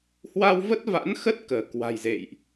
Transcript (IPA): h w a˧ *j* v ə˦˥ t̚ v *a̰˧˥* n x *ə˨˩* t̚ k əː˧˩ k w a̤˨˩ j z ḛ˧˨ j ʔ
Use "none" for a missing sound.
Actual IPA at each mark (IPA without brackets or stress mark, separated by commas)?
w, a̰˧˥, ə˦˥